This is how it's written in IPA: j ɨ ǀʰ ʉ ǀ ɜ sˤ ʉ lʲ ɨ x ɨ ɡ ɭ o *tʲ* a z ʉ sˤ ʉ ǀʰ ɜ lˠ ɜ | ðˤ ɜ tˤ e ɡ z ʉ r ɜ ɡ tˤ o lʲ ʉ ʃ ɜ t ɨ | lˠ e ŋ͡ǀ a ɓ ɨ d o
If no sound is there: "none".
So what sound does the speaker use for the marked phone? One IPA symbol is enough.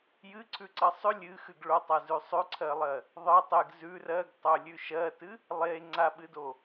tˤ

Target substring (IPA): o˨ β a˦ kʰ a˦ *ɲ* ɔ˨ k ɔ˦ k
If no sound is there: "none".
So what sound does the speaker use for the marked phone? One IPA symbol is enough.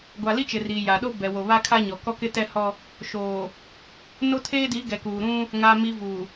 ɲ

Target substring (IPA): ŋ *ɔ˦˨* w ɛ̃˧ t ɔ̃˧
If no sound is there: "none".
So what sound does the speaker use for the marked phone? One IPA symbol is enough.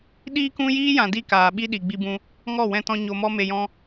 ɔ˦˨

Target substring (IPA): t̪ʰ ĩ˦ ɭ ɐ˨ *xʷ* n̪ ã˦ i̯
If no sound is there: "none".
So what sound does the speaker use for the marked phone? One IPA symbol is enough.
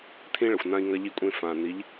xʷ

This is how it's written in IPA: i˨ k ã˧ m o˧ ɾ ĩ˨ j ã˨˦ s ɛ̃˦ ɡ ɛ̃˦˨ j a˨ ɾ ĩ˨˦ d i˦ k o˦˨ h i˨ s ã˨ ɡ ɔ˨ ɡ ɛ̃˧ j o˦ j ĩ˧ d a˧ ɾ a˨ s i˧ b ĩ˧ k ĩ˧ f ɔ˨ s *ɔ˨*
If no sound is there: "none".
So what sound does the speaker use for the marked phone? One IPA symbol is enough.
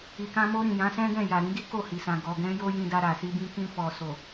o˨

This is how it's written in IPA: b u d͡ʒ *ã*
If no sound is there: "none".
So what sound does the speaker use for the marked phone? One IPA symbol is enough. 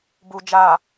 a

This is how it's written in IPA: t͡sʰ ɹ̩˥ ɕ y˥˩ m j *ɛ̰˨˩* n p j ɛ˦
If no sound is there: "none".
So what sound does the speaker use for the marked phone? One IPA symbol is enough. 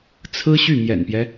ɛ̰˨˩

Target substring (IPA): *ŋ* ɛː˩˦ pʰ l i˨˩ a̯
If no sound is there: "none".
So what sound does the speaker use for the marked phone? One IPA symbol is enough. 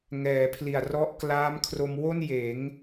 ŋ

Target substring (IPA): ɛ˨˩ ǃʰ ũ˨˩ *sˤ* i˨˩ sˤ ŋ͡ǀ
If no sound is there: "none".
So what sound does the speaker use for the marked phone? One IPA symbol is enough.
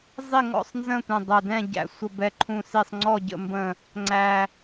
s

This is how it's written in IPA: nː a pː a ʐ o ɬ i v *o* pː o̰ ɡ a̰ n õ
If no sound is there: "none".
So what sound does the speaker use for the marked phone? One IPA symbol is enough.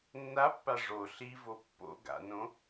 o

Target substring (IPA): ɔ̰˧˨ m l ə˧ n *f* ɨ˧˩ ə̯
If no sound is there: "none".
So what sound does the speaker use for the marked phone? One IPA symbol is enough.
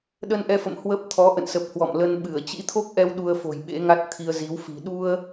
ɓ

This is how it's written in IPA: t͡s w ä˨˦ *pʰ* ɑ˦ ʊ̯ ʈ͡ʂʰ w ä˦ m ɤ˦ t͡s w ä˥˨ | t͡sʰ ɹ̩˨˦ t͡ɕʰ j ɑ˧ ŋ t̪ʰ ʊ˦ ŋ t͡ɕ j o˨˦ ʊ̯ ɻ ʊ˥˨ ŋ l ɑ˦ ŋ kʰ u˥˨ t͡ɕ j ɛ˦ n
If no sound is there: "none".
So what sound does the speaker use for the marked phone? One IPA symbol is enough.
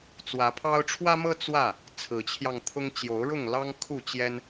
pʰ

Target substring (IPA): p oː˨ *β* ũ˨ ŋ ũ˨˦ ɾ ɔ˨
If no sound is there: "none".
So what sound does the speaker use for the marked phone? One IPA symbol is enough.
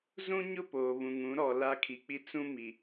β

